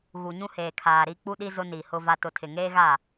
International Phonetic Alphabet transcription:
ɣ u˨ ɲ ũ˦ h eː˨ kʰ aː˨ ɾ i˦ k͡p u˦ ɗ i˦ z ʊ˦ n i˨ h ʊ˦ v a˦ t ʊ˦ tʰ ɪ˨ ŋ eː˦ ɣ a˦˨

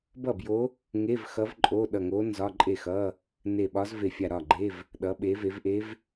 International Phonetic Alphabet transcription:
b ʌ˥˩ b j o˧˥ | ŋ e˧˥˧ v x ʌ˧˥ v ǃʼ o˧˥˧ ɗ ʌ˧˩ ŋ o˧˥ n z ɒ˧˥˧ ǃʼ e˥˩ x ʌ˧˥˧ | n e˧˩ ɓ ɒ˧˥ z v e˧˩ fʲ a˧˩ ɾ ɒ˥˩ ɡ͡ǃ e˧˥˧ v | ɗ ʌ˩˧ ɓ e˩˧ v e˩˧ v ʔ e˧˥ v

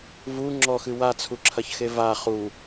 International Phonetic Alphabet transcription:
v u ŋ͡ǁ ɔ x ɨ w a t͡sʰ u ǁʰ ɐ ç x e v a χ u

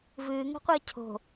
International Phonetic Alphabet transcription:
v ɨː ŋ ə̤ qʷ əː cʰ o̤

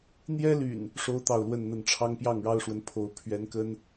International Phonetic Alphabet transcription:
n̪ j ɛ˦ l y̰˨˩ n | ʂ o˦ ʊ̯ t̪ ɑ˥˨ ʊ̯ l w ə˥˨ n n̪ ə˥˨ n ʈ͡ʂʰ ɑ˦ ŋ p j ɑ˥˨ ŋ ɻ ɑ˦ ʊ̯ ʂ w ə˨˦ n pʰ o˨˦ ʊ̯ pʰ ɥ ɛ˨˦ n k ə˦ n

